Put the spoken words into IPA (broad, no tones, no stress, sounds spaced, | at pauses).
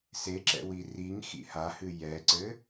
s e ǁ ɛ̰ w i r i ŋ x ḭ h a h ɨ j ɛ ǀ ɘ